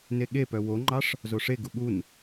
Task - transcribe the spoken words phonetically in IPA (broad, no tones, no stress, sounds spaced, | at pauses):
n e ɠ e p œ w o ŋ͡ǃ ɑ ʂ | z o ʂ e ɡ u ɠ u n